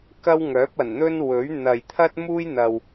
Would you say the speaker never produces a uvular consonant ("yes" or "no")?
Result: yes